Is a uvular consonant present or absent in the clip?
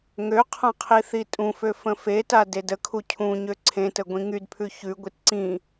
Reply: present